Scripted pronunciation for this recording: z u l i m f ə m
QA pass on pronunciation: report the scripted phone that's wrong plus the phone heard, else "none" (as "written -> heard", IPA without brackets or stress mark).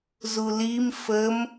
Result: none